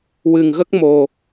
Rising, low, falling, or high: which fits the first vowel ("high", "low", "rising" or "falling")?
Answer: low